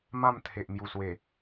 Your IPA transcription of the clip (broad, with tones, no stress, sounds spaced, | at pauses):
m ã˥˧ m t̪ʰ e˨ ʔ m j u˨˩ s w e˨˩